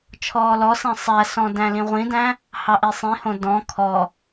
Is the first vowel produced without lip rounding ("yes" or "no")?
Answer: no